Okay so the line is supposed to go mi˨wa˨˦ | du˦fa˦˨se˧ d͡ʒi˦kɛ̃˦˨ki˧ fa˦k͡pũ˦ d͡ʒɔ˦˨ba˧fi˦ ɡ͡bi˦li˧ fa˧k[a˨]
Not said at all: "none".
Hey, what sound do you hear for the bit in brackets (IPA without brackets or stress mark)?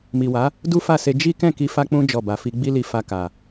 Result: a˨